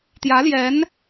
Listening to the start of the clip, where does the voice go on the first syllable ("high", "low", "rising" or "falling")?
rising